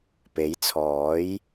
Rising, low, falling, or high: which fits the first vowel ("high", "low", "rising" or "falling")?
rising